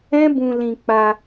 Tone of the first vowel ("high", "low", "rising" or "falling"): high